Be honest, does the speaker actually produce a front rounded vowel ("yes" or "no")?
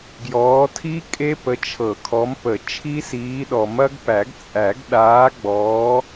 no